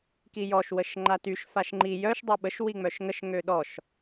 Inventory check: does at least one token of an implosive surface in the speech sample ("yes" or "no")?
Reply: yes